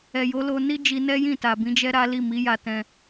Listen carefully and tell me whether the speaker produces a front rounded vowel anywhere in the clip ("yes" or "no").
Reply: no